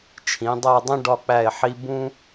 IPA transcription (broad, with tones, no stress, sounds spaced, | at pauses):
t͡ʃʰ ĩ˩˧ dˤ æ˥˧ dˤ ĩ˥ ɖ ɒ˧ k͡p æ˧˩ e̯ ħ i˧ b ũ˥